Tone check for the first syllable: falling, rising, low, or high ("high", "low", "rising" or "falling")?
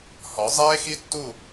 rising